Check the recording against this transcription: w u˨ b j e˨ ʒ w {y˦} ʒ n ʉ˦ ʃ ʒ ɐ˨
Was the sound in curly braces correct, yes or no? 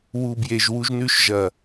no